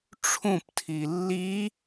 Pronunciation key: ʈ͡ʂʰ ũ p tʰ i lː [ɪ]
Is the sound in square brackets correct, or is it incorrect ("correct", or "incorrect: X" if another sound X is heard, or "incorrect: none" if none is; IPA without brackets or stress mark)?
incorrect: i